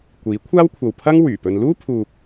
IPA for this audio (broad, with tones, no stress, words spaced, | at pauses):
kʷiː˨˥kʷʰaː˥wkʷʰɐ˨wpʰɐ˥ŋ wyː˨˩pɵ˧n luː˥pʰuː˨p̚